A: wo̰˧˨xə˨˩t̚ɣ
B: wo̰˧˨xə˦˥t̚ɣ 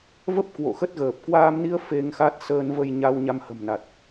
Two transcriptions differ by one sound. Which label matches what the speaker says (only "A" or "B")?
B